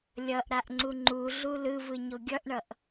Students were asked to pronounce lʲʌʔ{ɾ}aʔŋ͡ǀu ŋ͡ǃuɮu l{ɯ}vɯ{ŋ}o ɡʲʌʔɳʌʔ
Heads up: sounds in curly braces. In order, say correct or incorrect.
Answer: correct, correct, incorrect: ɲ

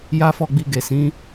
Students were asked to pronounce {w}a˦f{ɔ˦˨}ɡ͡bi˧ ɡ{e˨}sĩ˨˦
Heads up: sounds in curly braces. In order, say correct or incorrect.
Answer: incorrect: j, correct, correct

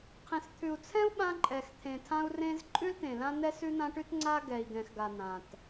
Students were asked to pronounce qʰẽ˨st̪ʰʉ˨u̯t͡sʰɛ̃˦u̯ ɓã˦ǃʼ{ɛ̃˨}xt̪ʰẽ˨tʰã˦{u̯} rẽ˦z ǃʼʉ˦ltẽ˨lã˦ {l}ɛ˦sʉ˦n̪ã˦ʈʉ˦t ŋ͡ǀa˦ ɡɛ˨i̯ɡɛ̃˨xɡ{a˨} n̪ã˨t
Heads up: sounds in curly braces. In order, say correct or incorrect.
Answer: incorrect: ɛ˨, correct, incorrect: n̪, correct

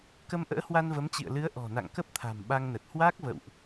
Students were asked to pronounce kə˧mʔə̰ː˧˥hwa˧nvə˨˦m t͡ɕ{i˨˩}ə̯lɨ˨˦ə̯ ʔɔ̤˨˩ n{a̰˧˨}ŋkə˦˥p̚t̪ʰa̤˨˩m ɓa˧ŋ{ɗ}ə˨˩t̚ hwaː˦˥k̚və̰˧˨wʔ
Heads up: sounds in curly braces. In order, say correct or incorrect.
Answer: incorrect: ḭ˧˨, correct, incorrect: n

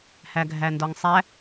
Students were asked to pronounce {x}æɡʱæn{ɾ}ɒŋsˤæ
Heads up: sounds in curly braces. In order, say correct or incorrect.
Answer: incorrect: h, incorrect: d

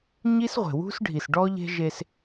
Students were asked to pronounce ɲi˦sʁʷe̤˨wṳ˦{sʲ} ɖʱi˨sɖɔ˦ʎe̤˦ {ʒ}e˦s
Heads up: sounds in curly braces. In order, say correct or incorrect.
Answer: incorrect: s, correct

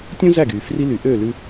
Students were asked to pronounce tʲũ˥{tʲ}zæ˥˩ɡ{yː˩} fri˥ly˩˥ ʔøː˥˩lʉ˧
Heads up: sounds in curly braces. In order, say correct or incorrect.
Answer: incorrect: none, correct

